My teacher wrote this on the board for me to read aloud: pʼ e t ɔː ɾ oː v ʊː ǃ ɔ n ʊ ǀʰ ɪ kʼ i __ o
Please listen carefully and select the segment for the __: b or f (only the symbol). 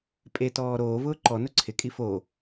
f